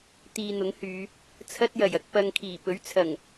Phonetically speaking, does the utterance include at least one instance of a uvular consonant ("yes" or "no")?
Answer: no